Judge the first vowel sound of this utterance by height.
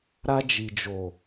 low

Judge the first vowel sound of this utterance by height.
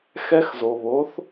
mid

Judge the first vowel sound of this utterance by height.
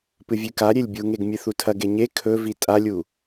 high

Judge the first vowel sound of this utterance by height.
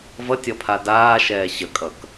mid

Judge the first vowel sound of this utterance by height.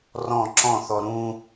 mid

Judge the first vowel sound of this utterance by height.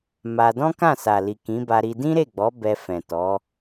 low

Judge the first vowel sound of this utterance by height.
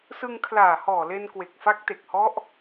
high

